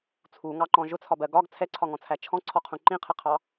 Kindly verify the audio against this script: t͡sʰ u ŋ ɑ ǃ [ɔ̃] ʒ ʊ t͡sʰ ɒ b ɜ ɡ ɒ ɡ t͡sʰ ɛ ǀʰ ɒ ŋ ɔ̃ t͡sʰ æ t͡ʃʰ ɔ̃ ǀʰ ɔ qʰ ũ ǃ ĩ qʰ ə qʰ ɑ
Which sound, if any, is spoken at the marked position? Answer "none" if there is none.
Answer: ɔ̃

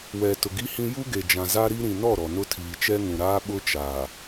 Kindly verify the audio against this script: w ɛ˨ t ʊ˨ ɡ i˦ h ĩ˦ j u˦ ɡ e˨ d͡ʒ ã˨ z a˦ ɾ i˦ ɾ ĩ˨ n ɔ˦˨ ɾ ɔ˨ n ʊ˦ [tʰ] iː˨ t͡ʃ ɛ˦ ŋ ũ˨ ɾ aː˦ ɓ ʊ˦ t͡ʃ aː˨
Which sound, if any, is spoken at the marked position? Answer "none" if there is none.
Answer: tʰ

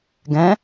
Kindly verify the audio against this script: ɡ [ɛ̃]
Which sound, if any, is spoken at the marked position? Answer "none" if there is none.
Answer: ɛ̃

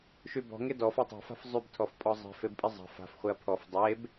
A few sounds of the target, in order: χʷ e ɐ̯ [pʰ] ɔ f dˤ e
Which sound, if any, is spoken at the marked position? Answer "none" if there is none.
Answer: pʰ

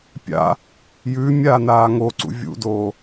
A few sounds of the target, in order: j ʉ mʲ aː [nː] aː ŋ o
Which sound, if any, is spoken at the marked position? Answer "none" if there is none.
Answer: n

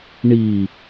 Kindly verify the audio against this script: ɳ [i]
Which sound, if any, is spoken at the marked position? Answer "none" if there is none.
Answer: i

